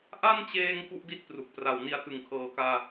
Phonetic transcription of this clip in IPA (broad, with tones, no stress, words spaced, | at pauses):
ʔa˥˩nt͡ɕeː˧ŋ ku˥˩ʔdi˥˩t̚pru˨˩k̚pra˨˩w ni˧a̯tɯ˩˦ŋkʰɤː˩˦kaː˧